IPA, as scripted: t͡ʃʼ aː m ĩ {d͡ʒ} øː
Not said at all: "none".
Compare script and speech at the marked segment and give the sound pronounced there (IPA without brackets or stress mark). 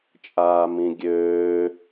ɡʲ